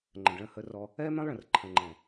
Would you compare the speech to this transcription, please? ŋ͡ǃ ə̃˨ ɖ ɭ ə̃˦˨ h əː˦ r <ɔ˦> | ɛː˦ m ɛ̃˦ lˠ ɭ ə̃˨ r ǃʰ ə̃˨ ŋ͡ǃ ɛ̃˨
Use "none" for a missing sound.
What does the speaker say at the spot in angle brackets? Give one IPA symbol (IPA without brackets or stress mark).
ɔ˦